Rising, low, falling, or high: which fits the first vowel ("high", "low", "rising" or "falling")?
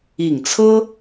low